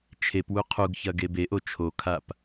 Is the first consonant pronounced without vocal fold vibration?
yes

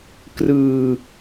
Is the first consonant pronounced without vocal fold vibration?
yes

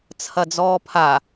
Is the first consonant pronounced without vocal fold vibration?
yes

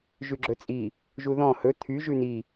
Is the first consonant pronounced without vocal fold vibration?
no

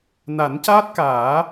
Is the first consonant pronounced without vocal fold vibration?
no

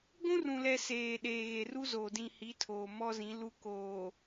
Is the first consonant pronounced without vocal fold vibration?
no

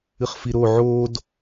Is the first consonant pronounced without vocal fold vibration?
yes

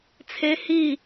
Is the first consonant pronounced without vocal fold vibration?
yes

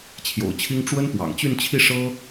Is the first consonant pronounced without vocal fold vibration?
yes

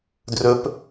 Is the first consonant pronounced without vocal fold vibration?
no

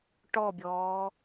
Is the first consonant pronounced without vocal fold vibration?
yes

